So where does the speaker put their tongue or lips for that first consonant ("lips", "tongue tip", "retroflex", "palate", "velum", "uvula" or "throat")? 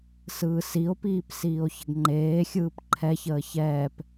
tongue tip